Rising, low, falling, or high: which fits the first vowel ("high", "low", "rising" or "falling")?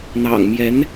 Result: low